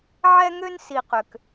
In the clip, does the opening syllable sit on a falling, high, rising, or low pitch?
high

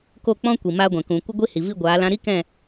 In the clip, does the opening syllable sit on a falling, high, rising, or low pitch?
falling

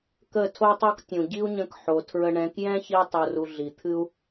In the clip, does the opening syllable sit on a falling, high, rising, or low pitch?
falling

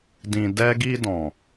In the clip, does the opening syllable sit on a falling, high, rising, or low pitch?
low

